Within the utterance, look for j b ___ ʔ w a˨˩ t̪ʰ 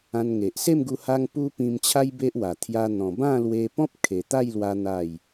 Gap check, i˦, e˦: e˦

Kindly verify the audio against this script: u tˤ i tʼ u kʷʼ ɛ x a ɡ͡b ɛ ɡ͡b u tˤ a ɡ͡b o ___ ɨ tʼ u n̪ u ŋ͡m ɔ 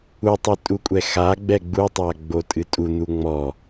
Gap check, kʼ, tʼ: tʼ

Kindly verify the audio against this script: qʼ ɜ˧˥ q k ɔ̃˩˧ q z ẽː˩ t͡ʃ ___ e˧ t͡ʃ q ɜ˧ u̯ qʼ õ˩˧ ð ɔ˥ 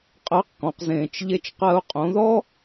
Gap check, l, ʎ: ʎ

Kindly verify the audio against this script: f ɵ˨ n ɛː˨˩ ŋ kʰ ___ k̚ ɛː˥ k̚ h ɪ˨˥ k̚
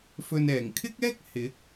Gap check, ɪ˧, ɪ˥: ɪ˥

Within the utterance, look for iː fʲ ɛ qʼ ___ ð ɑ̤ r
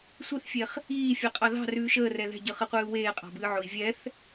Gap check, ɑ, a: ɑ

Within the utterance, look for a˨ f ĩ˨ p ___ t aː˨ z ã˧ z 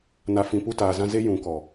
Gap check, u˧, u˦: u˧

